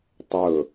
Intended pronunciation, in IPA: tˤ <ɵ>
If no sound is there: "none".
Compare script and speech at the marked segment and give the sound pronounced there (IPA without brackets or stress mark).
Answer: ɵ